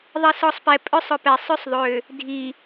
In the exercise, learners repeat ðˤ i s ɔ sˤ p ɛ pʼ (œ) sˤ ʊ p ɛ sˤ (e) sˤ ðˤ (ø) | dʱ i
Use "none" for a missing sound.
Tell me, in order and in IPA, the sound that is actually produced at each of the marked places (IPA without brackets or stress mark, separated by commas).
œ, ø, ø